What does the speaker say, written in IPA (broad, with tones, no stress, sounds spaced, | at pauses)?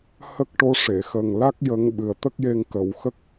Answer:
h ə˦˥ k̚ ʈ o˧˥ ʂ e˨˩˨ x ə˨˩ ŋ l a˦˥ k̚ j ə˧˥ ŋ ɓ ɨ˨˩ ə̯ t̪ ə˦˥ k̚ j e˧ ŋ k ə˨˩˨ w x ə˦˥ k̚